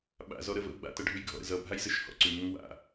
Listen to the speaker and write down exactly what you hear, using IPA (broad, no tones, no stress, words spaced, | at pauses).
ɓa̰ zɔɾəvə̰u̯ ɡ͡ba̰ tʌɖʱʉjɡʱɔ̰ɾə̰ zʌ bʱajzɘʃhɔ̰ǀʉ ŋəŋwa̰